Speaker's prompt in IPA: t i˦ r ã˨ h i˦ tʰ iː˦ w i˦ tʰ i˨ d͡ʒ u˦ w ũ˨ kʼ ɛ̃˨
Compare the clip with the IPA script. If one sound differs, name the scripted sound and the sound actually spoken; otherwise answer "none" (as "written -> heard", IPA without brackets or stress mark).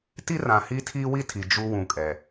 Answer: ɛ̃˨ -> ɛ˨